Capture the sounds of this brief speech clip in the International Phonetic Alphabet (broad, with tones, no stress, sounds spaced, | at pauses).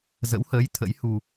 z ə̰˧˥ w h əː˨˦ j t̪ʰ ə̰˧˥ j h u˧